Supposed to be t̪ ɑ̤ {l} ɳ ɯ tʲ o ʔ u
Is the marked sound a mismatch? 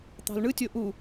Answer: no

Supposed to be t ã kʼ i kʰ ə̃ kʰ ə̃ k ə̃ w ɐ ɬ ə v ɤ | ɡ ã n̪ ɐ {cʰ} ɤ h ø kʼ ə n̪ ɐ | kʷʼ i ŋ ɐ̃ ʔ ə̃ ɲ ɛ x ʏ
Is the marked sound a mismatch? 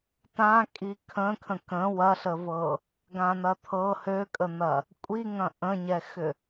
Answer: yes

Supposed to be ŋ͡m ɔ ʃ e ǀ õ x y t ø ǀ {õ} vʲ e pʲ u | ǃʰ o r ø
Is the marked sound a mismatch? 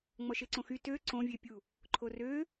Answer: no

